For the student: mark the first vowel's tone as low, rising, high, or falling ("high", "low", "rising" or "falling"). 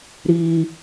high